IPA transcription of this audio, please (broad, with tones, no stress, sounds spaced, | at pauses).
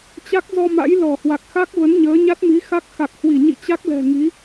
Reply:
t͡ɕ a˦˥ k̚ z ɔ˧ m a̰˧˥ j l ɔ˧˩ h w a˨˩ k̚ x a˦˥ k̚ v ə˨˦ n ɲ əː˨˦ ɲ a˦˥ t̚ m i˨˦ x a˦˥ k̚ x a˨˩ k̚ h w i˧˩ ɲ ḭ˧˨ t͡ɕ a˦˥ k̚ l ɛ̤˨˩ ŋ i˨˦